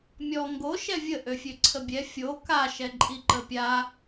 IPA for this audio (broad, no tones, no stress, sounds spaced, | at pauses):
mʲ ɔ ŋ ɡ o ʃ ɛ vʲ ə ʔ ø fʲ ø ǀʰ ə bʲ ɛ fʲ o k a ʃ ɛ ǃʼ i ǃ ə pʲ a